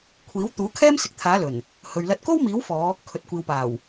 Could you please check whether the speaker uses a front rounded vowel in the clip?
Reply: no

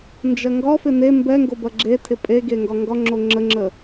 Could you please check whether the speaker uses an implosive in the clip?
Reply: no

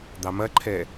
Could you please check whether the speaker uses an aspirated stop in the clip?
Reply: yes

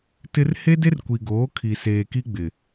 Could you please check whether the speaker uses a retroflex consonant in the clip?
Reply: no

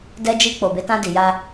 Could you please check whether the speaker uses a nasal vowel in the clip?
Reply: yes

